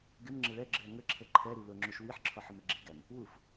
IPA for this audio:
ɡ ɪ m ŋ͡ǁ ɪ ɭ ɛ ɡ͡ǁ ɪ ɐ̯ ŋ ə ǁʰ ə ǃʰ ɛ ɾ i l ʊ ŋ͡ǁ u ʃ w i ħ ǁʰ ɔ ħ ʊ m e ɡ͡ǁ i ɡ æ m | w u f

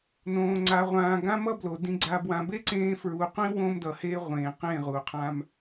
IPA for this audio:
n õː˨ ŋ͡ǀ a˨ ʁʷ ãː˨ ɡ ã˦ m ʌ˦ b l o˨ d ĩ˨ ɡ͡ǀ a˨ b w ã˨ b e˦ ǀ ẽː˦ f ɹ u˨ qʷ ĩ˦ w õ˦ m d ʌ˨ h e˦ ʁʷ ẽː˨ q ẽ˦˨ ʁ u˨ qʰ ã˦ m

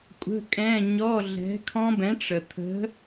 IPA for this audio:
kʷʼ ə̤˧˥˧ kʼ ɛ̃˧˥˧ ɲ ɔ˧˥˧ ɮ ɛ̤˨˥ kʰ ɔ̃˦˥ b ɛ̃˨˥ ʈ͡ʂ ə˩ t̪ʰ ə̤˨˥

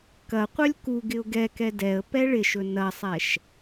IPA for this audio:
k ɐ qʷ œ lʲ k u ɡ ɪ ʊ̯ ɡ ɛ k ɛ d ɛ ə̯ p ɛ ɭ ɪ ʃ ɵ n ɐ sˤ ɛ ʃ

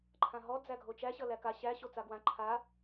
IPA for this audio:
ǃʰ ã ɦ ɔ d͡z æ ɡʱ o t͡ʃ æ ɕ ʌ l æ k a ɕ æ ɕ o t͡s a ɡ w ã ǃʰ a

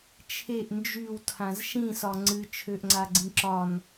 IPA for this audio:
t͡ʃʰ e ʔ n d͡ʒ y w tʰ ã z ʃ ĩ s ɒ ŋ͡ǀ ɨ t͡ʃʰ ø ʔ ŋ͡ǀ a ɡ͡ǀ ĩ ǁ ɒ n

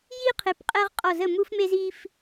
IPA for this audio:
j i˦ qʰ e˩˥ p qʼ ɛ˦ ʁ qʼ ɔ˧˩ z ə˥˩ m u˦ f m e˦ z i˦ f

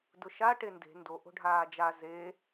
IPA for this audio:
d ʊ ʃ a ʈ e n d e̤ n d o ʔ o̤ ɖʱ aː d͡ʒ a z e

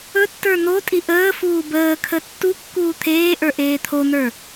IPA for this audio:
ɵ tː ə˞ n̪ o tʼ i ʔ əː f uː b əː kʰ ə tː u kː uː t̪ʰ eː ʔ ə˞ ʔ eː t̪ʰ o n̪ ə˞

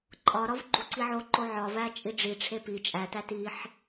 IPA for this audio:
ǃʼ ɒ ɾ ɒ v ɡ͡ǃ u ǀ i ʕ o ǃ o ʕ ɒ v æ t͡ʃʼ i ɖ͡ʐ i ʈ͡ʂʰ e p i t͡ʃʼ æ t æ t i ħ

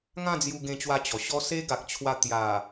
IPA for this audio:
ŋ ã˥˧ d͡z j u˧ ɡ ẽ˧ t͡ɕ w a˧ t͡ɕ ɔ˨˩ ɕ ɔ˦ s e˦ ɡ a˨ k̚ t͡ɕʰ w a˧ t̪ j a˨˩

